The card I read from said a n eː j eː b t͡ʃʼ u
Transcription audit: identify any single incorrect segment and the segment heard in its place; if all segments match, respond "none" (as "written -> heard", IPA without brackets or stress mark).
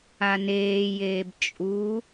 none